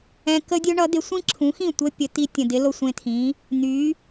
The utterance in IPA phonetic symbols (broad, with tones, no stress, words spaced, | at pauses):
ɛ̃˧ kə˥dʲɵ˥ɳʌ˩˥d̪ɪ˩˥ sʷĩ˥ǁʰũ˩˥xĩ˥˩ tʷə˧ pʲə˩˥t̪i˧ tʲə̃˩dɪ˩˥ lo˧sʷẽ˧t̪ʰĩ˩˥ | n̪y˩˥